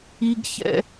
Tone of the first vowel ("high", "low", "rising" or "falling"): high